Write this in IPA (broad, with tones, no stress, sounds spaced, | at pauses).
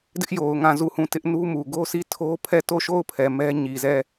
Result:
d ɪ˦ ʔ j o˨ ʊ̯ ŋ ã˦˨ z u˦˨ h ũ˦˨ t ɪ˦ ʔ n u˦ m u˨ ɡ o˦ sʰ i˦˨ tʰ o˦ pʰ ɛ˦˨ t o˦˨ ʃ o˦˨ ʊ̯ pʰ ɛ˨ m ɛ˦ ɲ i˨ z ɛ˦˨